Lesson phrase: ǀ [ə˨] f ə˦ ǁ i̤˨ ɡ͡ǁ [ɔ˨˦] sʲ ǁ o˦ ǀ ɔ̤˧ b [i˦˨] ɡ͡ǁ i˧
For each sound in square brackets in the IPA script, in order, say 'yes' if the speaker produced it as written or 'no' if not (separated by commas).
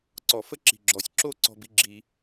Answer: no, yes, no